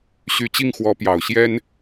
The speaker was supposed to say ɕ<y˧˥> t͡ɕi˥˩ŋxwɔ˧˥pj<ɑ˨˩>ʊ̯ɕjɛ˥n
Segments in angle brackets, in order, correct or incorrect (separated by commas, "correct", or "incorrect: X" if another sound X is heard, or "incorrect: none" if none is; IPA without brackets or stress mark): incorrect: y˨˩, correct